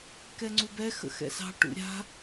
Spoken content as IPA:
k ɛ ŋ͡ǀ u b ɛ x ə̰ x ɛ̰ s ɑ̤ ʈ ṵ ɾʲ a̤

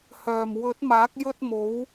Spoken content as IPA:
h œː˨˩ m w ɵ˨˥ t̚ m aː˨˥ k̚ j ɵ˧ t̚ m o˨˧ w

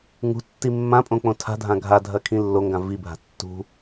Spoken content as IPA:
ŋ ṳ tː i mː ã pʼ õ k͡p õ tʰ a̤ dʱ ã ɡʱ a dʱ ɐ kʰ ĩ lː o ŋ ɡ ã v i bʱ a̤ tː ṳ

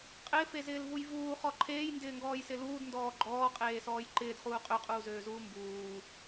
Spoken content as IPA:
qʼ ɪː f e z ɪː l v u j v uː χ ɔ ǃʰ eː j n d ɪː ŋ ɡ ɔː j s ɪ l uː d n d ɔː ɡ͡ǃ ɔː qʼ eː s ɔː j ǃ ɪː d χ uː qʼ ø qʼ uː z øː z uː m b uː

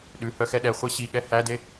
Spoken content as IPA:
ɗ ʉ h œ x ɛ ɗ ɛ χʷ e ɕ i ɠ ɛ h æ d e

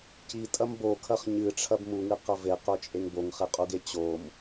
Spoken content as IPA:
c i tʼ ɐ m b o kʰ ɐ χ ɲ ɨ ʈ͡ʂʰ ɐ b m u ŋ ɨ q ɐ v e q ɵ t͡ʃʼ e ŋ b o ŋ χ e qʼ u ɡ e t͡ɕ o m

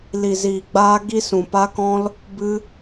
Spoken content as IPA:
l i˨ z iː˨ ɡ͡b aː˧ ɡ i˧ s ũ˨ p a˧ k ɔ̃˧ l | b ɨ˧

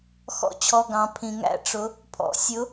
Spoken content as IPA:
x ɔ̰˧ t͡ɕʰ ɔ˩˧˩ ɡ ɑ̃˩˧ pʰ ĩ˩ ŋ æ̰˥˨ ʈ͡ʂ ʊ˨˥ | pʰ ɔ̰˩˧ sʲ ʊ˨˥

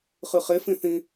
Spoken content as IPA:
χ ɨ χ e f ĩ θ ĩ

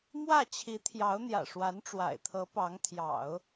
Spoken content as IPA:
m w ä˥˩ t͡ɕʰ i˧˥ t̪ʰ j ɑ˧˥ ʊ̯ n̪ j ä̰˨˩ ʂ w a˧˥ n ʈ͡ʂ w a̰˨˩ ɪ̯ t̪ʰ ɤ˧˥ p ɑ˧˥ ŋ t̪ʰ j ɑ̰˨˩˦ ʊ̯

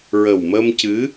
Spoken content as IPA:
ɹ ə˨˩ w m ə˧ m c ɨ˧˥

